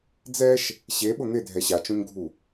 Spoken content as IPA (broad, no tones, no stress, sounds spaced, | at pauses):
d͡z ɛ ʃ | ɕ e ɓ ʊ n̪ ɪ dʱ ɛ ɕ a t͡ʃ õ ɲ ɡʱ u